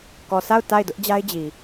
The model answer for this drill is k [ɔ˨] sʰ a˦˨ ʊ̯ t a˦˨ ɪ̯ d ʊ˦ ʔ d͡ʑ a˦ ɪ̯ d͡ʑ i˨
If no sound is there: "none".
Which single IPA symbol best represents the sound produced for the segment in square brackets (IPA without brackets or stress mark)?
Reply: ɔ˨